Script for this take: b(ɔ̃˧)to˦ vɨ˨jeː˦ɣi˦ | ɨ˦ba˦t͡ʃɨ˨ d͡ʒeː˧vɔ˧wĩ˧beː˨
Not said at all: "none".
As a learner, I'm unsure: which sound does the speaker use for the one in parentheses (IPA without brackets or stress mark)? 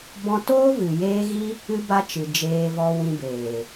ɔ̃˧